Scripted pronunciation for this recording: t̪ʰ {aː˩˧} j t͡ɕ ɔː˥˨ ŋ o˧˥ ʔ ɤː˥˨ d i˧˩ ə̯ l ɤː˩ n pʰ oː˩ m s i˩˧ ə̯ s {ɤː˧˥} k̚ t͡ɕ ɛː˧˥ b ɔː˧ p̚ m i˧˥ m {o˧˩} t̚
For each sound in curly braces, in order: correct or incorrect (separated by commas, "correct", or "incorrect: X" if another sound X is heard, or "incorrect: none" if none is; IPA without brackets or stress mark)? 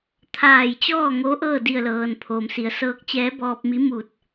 incorrect: aː˧˩, correct, incorrect: u˧˩